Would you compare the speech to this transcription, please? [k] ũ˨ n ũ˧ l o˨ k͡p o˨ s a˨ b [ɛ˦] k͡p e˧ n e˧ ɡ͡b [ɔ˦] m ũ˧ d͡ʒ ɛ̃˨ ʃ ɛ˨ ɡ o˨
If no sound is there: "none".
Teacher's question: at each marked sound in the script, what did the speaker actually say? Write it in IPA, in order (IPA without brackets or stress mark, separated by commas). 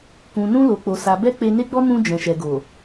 k, ɛ˧, ɔ˧